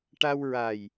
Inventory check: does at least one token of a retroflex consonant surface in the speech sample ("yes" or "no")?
yes